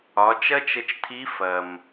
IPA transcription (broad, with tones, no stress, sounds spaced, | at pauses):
ɒ˩˧ t͡ʃ ɐ˥ t͡ʃ ə˧ t͡ʃ tʰ i˧˥ f ɐ˩ m